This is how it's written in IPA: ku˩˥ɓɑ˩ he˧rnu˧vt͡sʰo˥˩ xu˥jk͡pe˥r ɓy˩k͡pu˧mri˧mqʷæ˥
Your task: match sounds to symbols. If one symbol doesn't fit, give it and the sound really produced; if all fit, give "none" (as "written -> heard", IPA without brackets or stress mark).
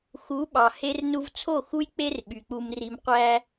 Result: k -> x